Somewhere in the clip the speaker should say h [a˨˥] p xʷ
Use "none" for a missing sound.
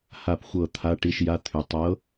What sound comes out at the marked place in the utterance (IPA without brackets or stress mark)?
a˨˩